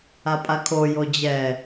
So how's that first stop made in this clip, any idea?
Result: ejective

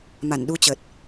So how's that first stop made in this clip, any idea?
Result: implosive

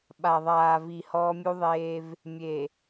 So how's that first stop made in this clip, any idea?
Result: implosive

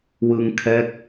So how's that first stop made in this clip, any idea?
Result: aspirated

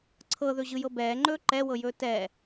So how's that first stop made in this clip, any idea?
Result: click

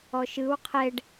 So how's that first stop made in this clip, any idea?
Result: aspirated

